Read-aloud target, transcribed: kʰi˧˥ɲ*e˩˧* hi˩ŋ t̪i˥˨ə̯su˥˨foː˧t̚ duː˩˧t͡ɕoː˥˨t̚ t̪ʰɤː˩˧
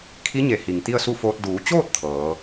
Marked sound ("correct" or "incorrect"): correct